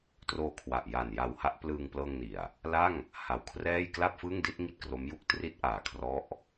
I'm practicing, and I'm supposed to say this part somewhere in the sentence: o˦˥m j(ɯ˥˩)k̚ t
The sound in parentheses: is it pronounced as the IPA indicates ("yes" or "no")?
no